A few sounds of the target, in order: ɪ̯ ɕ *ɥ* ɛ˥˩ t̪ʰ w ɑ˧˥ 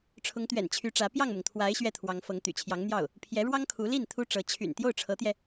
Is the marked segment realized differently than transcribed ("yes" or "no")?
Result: no